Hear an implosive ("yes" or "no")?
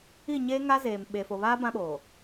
yes